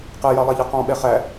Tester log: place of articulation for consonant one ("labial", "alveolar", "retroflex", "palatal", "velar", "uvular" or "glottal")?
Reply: uvular